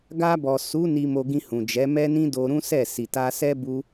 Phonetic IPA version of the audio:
ɡ a˧ b ɔ˨ s u˨˦ n i˧ m o˧ ɡ ĩ˧ h ũ˨ d͡ʒ ɛ˨˦ m ɛ˦ n ĩ˦ d o˧ ɾ ũ˦ s ɛ˦˨ s i˨ t a˧ s ɛ˦ b u˦

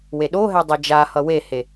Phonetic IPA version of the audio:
w e ɗ o ɦ ɛ dˤ ɛ d͡ʒ a h ʌ w e h e

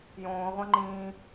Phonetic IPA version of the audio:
j õː ʁʷ ã ŋ͡ǃ ĩː

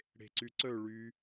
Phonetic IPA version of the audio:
ɽ e̤ ǀ y ǀ œ ɭ y

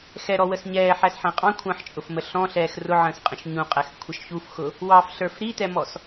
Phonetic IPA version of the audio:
x ɛ ɾ ɔ w ə s ɲ ɛː ħ æ s ħ æ̃ qʼ ɑ̃ kʷʰ ə̃ː ħ t͡ʃʼ ʊ f m ə ɬ ɔ̃ ɬ ɛː x r ʊ ʕ ə̃ː s qʼ ə̃ ʃ ɲ ũ qʼ æ x kʷʰ ʌ ʃ ç u f x ʊ | w ɑ f ɬ ə˞ f ɾ i t ɛ m ɔ s

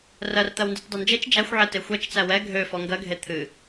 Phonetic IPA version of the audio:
r ɜ r t̪ ɜ w n d e t dˤ ɛ n d͡ʒ e t͡ʃ d͡ʒ æ xʷ ʕ ɛ t e xʷ ɛ t͡ʃ t͡s æ w ɛ ɡʱ ø f ɔ ŋ ɡ ɜ ɡʱ e t̪ʰ ɨ

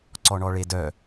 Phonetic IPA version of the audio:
ǀ ɔ ɳ ɔ ɭ e d œ

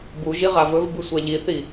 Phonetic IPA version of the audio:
b u ʒ i ʁ a v ɵ v b ɨ sʷ a ʎ i θ i

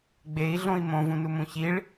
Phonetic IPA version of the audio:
ɡ͡b e i̯ ɮ õ i̯ m õ v ũ n u m ũ ç i ɭ

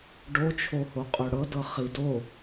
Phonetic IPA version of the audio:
ɖ o t͡ʃʰ o h o qʼ ɵ ɽ ɤ d ɤ χ i d o

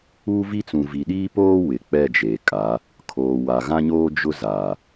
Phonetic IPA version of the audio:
uː˦ v i˦ t͡s ũ˨ v i˨ ɗ iː˦ p oː˦ w ɪ˨ k͡p ɛ˦˨ d͡ʒ eː˨ kʼ a˨˦ | kʰ oː˨ w a˨ ɣ ã˦ ɲ oː˦ d͡ʒ ʊ˦ z a˨

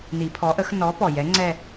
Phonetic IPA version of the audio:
n i˨˩˦ pʰ ɔ˨˥ ʔ ə˨˥ x n ɔ˨˥ p ɔ˨˩ j ɛ˨˥ ŋ͡ǀ ɛ˥˧

